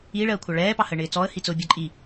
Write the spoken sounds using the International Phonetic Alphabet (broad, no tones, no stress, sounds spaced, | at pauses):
i ɭ ɜː kʷʰ ɑ ɭ ɛː p ɑ h ə ɳ ɪː t͡s ɔː ə̯ h i t͡s ʊ bʲ ɒ ǃʼ i